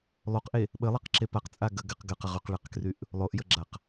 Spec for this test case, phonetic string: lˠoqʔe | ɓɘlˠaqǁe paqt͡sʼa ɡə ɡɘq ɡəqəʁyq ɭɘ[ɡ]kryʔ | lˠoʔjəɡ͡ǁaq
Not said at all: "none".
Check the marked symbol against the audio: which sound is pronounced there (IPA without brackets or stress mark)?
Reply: q